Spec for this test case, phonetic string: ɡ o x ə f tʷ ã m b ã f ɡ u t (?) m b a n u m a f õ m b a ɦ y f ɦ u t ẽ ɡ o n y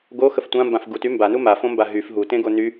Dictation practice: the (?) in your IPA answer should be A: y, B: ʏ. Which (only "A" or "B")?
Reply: A